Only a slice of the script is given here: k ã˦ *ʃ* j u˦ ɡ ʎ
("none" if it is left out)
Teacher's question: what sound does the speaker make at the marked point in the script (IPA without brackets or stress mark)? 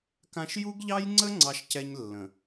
ʃ